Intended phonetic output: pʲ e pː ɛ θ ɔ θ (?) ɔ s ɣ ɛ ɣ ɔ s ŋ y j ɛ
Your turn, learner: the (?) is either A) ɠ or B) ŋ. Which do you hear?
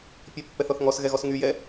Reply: B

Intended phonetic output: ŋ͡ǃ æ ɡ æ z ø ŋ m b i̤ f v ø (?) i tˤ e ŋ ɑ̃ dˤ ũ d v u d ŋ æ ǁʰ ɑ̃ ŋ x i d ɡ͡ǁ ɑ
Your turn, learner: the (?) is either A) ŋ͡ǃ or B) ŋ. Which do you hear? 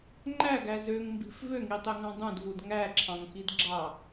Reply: B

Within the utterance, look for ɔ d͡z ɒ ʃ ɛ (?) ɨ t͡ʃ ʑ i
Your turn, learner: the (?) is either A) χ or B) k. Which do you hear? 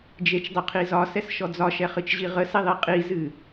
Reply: A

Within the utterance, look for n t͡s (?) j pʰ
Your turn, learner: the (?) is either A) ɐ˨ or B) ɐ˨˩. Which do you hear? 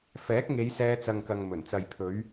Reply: A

